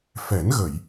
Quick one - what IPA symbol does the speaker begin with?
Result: f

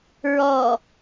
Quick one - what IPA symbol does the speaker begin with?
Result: ɹ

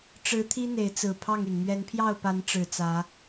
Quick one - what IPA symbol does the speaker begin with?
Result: ʈ͡ʂ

